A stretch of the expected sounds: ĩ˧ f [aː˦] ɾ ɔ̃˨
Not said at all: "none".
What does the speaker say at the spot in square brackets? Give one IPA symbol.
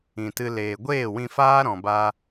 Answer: aː˦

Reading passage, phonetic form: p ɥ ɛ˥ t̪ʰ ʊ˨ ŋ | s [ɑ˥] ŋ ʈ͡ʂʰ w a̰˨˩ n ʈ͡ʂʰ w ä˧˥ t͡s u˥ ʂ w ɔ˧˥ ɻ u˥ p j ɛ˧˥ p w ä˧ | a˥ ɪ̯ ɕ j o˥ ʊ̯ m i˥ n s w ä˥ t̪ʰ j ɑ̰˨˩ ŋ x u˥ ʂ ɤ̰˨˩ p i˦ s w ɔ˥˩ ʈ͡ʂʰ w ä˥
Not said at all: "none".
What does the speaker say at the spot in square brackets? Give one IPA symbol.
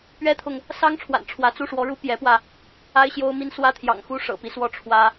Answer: ɑ˥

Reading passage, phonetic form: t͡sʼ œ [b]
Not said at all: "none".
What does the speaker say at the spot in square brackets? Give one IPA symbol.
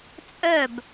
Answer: b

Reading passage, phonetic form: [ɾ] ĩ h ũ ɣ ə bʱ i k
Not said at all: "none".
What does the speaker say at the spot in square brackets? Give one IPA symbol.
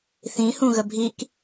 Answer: θ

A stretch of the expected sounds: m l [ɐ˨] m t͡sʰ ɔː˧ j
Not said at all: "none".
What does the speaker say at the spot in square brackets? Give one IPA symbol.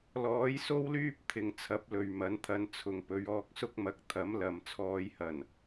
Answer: ɐ˨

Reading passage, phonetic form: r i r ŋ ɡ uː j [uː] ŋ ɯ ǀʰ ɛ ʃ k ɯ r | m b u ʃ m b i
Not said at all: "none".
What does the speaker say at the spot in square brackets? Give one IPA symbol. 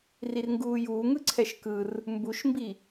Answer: uː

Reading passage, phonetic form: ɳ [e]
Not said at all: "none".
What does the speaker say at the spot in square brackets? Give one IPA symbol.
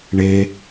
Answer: e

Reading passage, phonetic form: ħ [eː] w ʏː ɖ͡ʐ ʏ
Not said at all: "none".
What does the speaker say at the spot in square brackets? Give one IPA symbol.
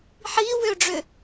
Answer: iː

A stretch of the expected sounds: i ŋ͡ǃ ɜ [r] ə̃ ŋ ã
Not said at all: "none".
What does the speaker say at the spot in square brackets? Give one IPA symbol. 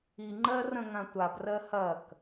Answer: r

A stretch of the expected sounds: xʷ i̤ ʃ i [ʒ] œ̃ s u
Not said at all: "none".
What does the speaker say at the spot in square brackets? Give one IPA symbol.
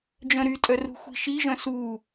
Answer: ʒ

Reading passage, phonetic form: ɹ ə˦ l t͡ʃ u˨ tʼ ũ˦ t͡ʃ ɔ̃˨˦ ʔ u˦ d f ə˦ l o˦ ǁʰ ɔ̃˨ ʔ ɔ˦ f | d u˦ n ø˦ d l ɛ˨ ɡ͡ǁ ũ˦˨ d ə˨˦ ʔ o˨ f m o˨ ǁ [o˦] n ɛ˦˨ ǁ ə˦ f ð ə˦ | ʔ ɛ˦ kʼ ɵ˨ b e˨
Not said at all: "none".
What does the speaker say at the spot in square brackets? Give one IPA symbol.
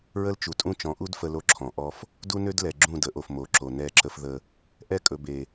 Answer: o˨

